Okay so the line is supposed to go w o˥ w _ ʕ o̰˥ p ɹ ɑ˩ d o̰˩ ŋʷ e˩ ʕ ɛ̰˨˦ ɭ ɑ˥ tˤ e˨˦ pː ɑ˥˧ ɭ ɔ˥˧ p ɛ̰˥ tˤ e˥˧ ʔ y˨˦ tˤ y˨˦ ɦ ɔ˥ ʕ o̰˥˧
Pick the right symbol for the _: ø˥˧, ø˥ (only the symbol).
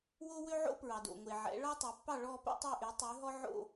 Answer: ø˥